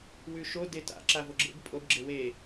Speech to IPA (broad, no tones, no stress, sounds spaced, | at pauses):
w ʉ ʃ o d e t a̰ ǁ a v o ɡ͡ǁ ḛ b pʼ o b ɡ͡ǁ e w e